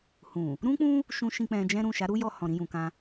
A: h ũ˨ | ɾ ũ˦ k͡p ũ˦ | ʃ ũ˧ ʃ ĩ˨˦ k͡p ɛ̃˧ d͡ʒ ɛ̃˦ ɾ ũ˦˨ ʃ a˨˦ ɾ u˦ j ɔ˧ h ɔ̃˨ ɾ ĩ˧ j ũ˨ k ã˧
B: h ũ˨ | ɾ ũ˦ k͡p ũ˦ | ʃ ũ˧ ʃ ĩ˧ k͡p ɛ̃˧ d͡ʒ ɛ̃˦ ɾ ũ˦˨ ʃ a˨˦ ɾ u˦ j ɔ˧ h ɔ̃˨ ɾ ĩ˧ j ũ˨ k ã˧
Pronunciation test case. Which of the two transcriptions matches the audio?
B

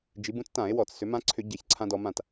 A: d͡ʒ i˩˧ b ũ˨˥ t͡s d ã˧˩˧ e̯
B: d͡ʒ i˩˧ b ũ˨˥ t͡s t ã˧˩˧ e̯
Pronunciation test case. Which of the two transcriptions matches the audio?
B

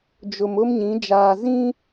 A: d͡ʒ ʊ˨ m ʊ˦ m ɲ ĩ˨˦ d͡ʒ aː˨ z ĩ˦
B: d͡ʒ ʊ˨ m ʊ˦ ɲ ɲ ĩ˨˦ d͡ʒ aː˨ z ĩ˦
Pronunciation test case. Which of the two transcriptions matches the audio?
A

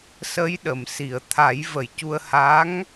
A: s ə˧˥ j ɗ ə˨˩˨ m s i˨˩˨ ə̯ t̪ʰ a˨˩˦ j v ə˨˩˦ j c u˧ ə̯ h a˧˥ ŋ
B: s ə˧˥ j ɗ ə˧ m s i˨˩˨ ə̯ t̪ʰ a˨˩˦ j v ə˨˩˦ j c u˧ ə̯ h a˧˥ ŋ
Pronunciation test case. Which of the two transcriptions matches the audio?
A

